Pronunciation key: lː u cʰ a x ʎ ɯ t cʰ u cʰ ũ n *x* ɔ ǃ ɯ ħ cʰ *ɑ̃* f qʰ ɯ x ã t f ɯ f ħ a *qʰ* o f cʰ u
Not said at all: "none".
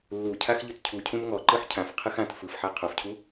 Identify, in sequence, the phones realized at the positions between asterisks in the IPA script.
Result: ŋ, ã, qʰ

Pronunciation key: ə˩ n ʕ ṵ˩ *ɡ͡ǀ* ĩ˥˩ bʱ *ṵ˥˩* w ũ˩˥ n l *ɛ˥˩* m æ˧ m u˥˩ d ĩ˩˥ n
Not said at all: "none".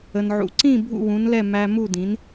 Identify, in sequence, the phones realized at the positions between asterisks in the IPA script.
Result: ǀ, ṵ˥˩, ɛ˥˩

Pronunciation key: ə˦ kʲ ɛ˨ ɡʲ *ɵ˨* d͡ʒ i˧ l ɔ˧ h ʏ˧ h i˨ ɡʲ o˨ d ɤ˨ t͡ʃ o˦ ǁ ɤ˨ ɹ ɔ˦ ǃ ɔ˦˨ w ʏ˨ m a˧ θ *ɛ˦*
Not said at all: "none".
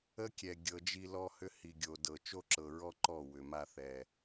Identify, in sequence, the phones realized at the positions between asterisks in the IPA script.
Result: ɤ˨, ɛ˨

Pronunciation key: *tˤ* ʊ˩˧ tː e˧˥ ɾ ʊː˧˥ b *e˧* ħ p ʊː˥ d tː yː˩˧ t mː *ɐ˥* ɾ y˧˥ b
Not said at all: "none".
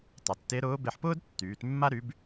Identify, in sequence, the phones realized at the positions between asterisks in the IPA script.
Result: tˤ, e˧, a˥

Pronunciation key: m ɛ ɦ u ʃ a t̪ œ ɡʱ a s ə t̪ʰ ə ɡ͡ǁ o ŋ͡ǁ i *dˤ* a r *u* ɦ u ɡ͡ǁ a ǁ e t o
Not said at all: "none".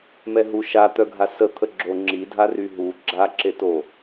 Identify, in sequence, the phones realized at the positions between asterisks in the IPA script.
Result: dʱ, y

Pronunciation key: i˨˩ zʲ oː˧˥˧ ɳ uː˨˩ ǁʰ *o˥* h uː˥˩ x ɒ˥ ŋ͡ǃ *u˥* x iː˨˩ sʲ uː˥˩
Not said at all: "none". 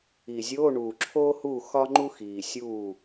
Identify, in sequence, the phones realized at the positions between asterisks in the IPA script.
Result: oː˥, u˥

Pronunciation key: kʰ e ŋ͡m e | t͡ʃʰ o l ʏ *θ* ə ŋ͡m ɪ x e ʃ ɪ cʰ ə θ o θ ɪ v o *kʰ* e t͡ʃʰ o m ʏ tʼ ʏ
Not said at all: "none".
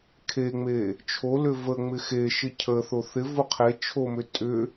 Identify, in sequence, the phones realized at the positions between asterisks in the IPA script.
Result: v, qʰ

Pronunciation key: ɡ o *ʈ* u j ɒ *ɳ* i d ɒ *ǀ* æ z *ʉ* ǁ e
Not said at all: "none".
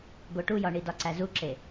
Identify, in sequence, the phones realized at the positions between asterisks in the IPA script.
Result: ʈ, ɳ, ǀ, u

